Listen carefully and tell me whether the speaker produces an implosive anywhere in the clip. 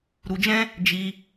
no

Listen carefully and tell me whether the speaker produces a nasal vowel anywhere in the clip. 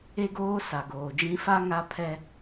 yes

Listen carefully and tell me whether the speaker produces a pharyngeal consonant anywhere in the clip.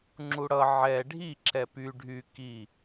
yes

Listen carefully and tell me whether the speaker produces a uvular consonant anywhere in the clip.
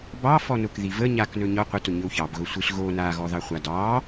yes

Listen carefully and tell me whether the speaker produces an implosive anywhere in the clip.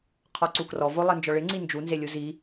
no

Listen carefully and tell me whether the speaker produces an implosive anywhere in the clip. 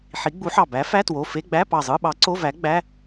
yes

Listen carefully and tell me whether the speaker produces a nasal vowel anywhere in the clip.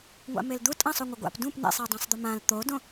yes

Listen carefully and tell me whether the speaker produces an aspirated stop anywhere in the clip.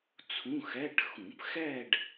yes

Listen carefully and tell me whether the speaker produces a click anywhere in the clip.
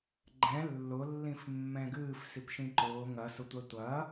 yes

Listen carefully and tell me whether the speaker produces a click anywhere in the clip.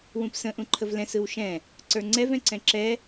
yes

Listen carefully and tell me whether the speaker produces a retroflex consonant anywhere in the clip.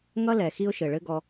yes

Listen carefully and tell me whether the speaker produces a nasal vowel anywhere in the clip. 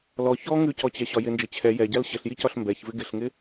no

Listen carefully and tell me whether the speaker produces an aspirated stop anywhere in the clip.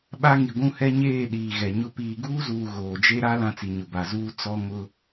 no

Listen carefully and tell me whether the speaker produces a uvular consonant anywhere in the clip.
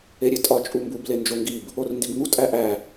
no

